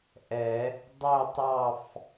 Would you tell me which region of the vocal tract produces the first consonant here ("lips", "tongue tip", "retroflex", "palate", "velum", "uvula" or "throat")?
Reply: throat